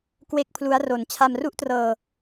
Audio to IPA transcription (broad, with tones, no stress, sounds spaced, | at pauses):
k w e˥˩ k̚ pʰ l u˦˥ a̯ r o˨˩ n t͡ɕʰ a˧ m r u˥˩ ʔ t r ɤː˧